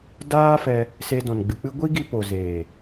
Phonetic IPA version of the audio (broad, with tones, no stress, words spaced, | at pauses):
daː˦fɛ˧ | se˧dɔ̃˨nɡ͡bɨ˨k͡pɨ˦ ɡʷi˦ɡi˧ po˨zeː˨